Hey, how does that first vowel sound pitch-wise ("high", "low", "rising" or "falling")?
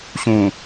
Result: low